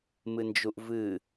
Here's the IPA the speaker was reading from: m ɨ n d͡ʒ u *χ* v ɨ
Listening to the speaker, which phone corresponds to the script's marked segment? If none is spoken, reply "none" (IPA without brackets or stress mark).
ʔ